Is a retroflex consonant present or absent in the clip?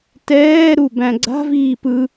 absent